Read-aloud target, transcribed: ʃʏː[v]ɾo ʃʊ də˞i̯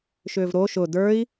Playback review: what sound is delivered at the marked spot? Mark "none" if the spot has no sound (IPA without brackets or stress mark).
v